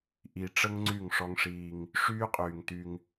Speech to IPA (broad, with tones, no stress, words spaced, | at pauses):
ʔi˨ʈ͡ʂə˦ŋ ŋ͡ǀy˦˨ŋʂɔ˦ŋʂiː˦ŋ | ʂyː˦qʼyː˨ŋty˦ŋ